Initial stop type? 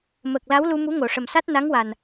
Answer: plain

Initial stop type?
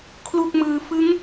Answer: aspirated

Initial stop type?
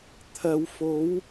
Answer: aspirated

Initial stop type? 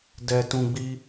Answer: plain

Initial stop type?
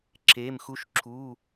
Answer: click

